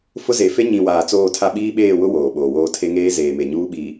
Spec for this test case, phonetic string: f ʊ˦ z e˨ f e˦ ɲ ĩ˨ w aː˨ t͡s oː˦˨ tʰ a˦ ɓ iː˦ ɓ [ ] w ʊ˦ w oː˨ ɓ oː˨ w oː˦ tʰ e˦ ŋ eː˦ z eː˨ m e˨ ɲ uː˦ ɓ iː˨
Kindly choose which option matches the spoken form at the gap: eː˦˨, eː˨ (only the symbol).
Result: eː˦˨